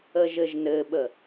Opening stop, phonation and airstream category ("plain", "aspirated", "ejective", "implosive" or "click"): implosive